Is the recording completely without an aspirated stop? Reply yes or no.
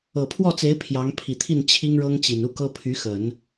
no